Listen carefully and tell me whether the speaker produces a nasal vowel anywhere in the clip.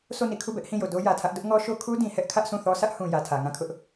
yes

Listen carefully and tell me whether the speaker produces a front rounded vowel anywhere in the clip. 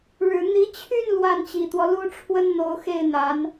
yes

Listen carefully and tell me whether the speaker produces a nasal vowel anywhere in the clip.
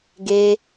no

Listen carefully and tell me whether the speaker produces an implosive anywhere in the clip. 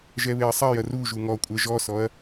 no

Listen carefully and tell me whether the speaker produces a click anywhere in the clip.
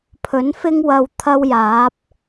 no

